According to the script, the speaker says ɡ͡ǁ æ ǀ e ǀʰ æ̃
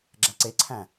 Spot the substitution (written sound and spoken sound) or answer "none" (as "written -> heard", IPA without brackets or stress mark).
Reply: none